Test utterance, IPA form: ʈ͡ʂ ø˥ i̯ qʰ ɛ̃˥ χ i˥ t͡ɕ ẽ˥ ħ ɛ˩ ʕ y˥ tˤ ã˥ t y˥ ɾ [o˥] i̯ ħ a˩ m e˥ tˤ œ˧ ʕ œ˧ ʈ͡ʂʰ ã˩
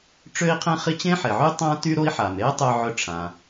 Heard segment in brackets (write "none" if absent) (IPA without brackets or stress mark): o˥